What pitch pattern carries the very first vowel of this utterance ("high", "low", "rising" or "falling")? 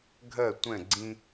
falling